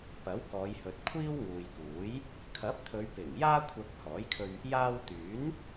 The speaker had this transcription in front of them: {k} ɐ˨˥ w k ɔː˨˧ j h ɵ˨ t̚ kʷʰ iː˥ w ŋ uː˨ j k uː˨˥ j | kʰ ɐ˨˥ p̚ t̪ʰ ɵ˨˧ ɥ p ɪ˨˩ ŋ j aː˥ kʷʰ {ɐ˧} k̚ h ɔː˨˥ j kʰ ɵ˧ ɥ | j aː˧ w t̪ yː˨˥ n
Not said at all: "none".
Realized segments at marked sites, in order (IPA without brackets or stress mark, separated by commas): p, ɐ˧